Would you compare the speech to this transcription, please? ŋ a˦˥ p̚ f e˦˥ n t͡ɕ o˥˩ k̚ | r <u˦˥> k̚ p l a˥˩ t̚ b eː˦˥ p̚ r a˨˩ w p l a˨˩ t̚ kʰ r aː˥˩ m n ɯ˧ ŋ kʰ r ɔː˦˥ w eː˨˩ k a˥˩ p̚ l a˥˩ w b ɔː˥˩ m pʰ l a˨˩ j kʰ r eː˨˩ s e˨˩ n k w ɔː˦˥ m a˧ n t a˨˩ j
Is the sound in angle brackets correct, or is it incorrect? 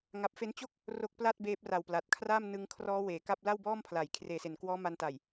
incorrect